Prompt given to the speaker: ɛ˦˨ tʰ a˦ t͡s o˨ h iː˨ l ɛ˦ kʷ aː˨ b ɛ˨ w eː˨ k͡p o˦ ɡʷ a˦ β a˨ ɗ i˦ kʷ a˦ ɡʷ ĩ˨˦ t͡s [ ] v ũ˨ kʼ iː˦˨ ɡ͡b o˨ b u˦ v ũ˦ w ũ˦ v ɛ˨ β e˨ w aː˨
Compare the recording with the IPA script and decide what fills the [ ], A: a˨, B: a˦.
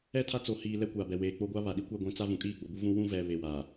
B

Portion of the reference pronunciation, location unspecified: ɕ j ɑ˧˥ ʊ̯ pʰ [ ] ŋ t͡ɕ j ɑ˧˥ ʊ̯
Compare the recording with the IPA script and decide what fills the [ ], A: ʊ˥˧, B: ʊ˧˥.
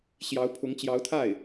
B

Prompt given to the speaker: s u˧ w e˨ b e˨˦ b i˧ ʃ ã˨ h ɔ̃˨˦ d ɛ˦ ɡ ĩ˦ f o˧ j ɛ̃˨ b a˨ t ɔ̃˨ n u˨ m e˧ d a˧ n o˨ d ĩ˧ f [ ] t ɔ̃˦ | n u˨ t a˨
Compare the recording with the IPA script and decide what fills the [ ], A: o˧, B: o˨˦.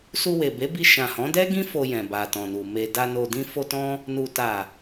A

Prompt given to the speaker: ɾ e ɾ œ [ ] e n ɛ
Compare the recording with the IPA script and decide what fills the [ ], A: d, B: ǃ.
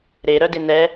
A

